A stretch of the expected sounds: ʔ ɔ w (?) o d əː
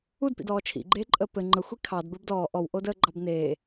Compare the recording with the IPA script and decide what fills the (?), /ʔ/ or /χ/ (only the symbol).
ʔ